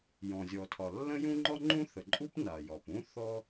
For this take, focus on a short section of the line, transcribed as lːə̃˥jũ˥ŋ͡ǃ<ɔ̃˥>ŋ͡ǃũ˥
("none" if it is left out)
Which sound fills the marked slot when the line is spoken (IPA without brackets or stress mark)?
ɔ˥